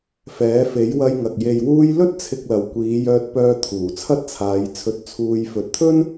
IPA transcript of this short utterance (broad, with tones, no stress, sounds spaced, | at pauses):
f ɛː˨˥ f e˨˥ j w ɐ˧ j ŋ ɐ˨ k̚ j e˨ j w uː˧ j l ɵ˥ t̚ t͡sʰ ɪ˧ k̚ l ɐ˨ w kʷ iː˨˧ j œː˧ t̚ p œː˧ t̪ʰ uː˨˩ t͡sʰ ɐ˥ t̚ t͡sʰ aː˨˧ j t͡sʰ ɵ˧ t̚ t͡sʰ uː˧ j f ɵ˨ t̚ t̪ʰ ɵ˥ n